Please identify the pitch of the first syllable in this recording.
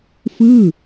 falling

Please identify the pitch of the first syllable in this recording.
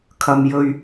low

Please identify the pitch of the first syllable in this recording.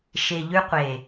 low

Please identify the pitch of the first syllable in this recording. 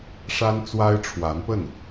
high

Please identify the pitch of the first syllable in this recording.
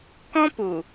high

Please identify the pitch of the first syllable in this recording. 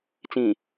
low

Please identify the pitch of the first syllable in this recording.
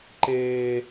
high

